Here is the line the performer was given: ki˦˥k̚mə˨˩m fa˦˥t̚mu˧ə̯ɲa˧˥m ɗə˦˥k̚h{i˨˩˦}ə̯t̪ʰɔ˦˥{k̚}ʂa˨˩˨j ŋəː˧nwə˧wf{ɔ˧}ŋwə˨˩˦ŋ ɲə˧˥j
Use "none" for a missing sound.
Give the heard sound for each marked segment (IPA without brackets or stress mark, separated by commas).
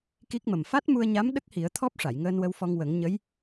i˨˩˦, p̚, ɔ˧